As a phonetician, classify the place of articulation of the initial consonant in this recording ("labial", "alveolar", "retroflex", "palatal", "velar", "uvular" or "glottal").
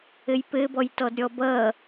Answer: palatal